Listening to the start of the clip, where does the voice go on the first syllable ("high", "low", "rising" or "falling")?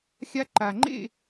high